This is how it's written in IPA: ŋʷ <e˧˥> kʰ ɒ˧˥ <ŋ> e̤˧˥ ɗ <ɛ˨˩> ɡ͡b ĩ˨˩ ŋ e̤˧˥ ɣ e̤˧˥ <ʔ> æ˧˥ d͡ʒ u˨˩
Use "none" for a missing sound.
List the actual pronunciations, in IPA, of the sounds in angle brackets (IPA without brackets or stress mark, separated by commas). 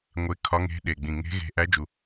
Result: e˧˥, ŋ, e˨˩, ʔ